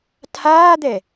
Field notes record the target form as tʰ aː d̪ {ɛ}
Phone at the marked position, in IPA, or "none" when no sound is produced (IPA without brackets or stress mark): ɛ